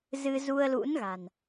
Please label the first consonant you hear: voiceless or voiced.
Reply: voiced